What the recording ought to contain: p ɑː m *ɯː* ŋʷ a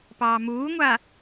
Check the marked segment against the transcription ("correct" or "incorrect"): incorrect